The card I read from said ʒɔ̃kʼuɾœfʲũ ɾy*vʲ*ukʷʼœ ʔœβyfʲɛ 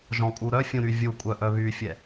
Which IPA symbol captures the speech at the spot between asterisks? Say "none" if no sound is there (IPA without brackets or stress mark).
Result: vʲ